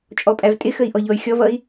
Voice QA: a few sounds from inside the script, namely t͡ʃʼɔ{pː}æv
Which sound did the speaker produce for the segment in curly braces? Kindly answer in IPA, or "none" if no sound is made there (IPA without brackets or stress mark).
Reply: pʼ